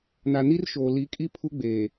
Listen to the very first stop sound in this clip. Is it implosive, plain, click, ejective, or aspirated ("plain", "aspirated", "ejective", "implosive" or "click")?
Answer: ejective